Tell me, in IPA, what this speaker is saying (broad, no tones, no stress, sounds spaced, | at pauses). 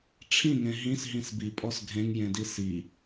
ʈ͡ʂʰ ĩ ŋ ẽ ɦ ĩ s ɦ ĩ s b i pʼ ɔ s ɡʱ ẽ ŋ j ẽ d i s i